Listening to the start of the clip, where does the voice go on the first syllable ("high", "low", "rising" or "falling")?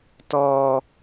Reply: high